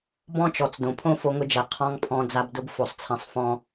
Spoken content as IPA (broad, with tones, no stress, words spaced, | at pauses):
bɔ̃˦t͡ʃɔ˨t͡sdõ˨ pʰõ˦fo˧ŋʊ˧d͡ʒɛ˨ qʰɔ̃˦ŋpʰɔ̃˧ d͡za˦bdʊ˦b fo˧sˤt͡sʰɛ̃˧sˤ fɔ̃˧